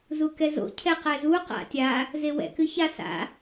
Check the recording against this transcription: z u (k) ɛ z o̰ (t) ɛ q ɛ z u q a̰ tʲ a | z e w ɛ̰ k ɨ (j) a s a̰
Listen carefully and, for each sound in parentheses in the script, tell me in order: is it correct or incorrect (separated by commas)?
correct, incorrect, incorrect